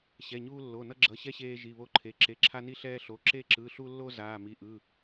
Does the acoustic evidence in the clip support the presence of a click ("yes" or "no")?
yes